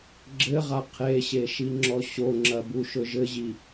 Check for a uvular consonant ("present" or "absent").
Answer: present